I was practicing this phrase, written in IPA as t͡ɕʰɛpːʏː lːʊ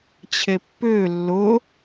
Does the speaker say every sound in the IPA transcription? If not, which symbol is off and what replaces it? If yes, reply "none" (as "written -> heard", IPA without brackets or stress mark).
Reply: ɛ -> e